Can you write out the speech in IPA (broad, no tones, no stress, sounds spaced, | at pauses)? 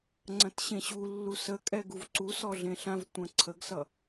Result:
ŋ͡ǀ ɐ̃ t ɕ ẽ ɕ u lː u s ə kʼ ɛ ɡ u v ǀ u s ɔ ɮ ẽ ɬ ã v tʷ ɐ̃ ǀʰ ə ɡ s ʌ